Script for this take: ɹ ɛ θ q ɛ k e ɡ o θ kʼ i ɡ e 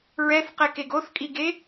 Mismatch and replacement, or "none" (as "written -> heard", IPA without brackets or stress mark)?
none